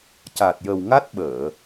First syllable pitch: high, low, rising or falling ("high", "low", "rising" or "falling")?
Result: low